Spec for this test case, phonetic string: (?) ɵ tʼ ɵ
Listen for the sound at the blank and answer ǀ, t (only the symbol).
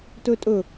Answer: t